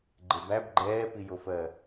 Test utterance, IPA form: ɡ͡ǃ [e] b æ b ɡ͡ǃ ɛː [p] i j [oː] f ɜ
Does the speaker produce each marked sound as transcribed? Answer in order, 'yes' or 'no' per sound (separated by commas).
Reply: yes, yes, no